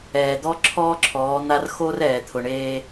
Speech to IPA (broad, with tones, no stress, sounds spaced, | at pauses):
ɛː˨ d̪ ɔ˦ ǁʰ ɔː˦ ǁʰ ɔː˨˦ n̪ a˦ r x o˦ r ɛː˨ t̪ʰ ʊ˨ ɳ eː˦